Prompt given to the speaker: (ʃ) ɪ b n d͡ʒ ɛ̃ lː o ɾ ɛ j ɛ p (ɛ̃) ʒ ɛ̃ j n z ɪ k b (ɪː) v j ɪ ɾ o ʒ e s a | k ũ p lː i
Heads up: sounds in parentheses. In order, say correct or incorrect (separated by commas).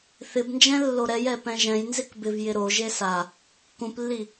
incorrect, correct, incorrect